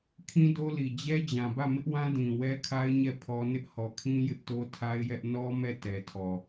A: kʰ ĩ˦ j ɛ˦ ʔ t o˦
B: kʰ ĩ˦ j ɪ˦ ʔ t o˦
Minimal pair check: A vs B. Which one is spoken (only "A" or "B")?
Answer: B